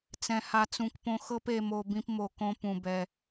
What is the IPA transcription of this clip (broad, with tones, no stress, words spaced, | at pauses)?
t͡sɛ̃˨ha˨t͡sũ˨kpõ˧ xɤ˦pe˧mo˧ bĩ˦pmo˧ kõ˦pũ˧bɛ˧